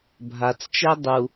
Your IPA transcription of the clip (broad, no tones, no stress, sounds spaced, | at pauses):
bʱ a t͡s t͡ʃ ɛ dˤ u